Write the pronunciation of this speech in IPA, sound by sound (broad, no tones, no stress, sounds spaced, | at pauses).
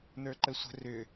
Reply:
n ə˞ ǃ ə sʷ ə̤ r ʏ